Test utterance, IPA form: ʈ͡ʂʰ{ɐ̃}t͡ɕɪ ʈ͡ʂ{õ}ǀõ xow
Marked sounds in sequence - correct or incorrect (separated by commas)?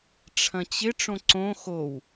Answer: correct, correct